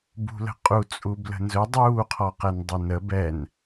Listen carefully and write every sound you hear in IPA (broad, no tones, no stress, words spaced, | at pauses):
bṳlə̤qʼu t͡sʼublə̤nzɵ dˤuː qʰɔqɛndˤunə bɛn